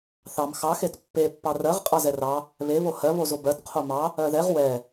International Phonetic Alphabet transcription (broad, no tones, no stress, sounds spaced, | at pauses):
θ ɑ m x ɑ x e t pː e pː ɑ r ɜ ʁ qʼ ɑ z ɛ r ɑ | β e β o h ɜ β o z o b ɜ t qʰ o m ɑ | ɜ ð ɛ ʁ w ɛ